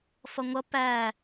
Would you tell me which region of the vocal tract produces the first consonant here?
lips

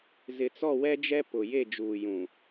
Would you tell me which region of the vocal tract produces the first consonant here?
tongue tip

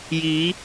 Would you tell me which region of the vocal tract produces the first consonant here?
palate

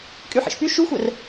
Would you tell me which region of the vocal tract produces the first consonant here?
velum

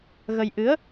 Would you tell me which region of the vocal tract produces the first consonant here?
velum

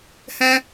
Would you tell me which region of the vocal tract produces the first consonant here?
throat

